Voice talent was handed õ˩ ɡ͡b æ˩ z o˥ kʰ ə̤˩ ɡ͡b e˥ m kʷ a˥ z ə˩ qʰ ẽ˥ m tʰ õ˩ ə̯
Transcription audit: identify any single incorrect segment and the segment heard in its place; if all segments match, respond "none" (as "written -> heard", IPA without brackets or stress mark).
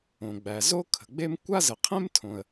none